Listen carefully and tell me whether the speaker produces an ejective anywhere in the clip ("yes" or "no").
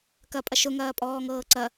yes